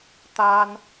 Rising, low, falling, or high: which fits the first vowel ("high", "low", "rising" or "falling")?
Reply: high